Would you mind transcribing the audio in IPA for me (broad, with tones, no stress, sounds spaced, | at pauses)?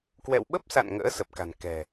k w ɛ̰˧˨ w ɓ ə˦˥ p̚ s a̰˧˨ n ŋ ə̰ː˧˥ s ə˨˩ p̚ k a̤˨˩ n k ɛ̤˨˩